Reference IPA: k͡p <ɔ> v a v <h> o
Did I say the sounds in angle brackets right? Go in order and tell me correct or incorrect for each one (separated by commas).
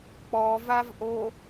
correct, incorrect